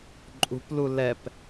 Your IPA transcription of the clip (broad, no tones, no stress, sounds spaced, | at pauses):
ǃʼ ṳ p l u l ɛ p